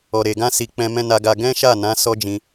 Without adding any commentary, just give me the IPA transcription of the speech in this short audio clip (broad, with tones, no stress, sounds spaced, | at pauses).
ɔ˨ ɾ e˨ ɡ ã˧ s i˨ k͡p ɛ̃˧ m ɛ̃˦ n a˧ ɡ a˧ ɡ ɛ̃˦ ʃ a˦˨ n ã˨˦ s ɔ˦ d͡ʒ ĩ˧